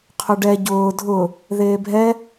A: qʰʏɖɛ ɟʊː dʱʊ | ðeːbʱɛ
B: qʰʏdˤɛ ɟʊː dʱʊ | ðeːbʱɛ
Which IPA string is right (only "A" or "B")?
A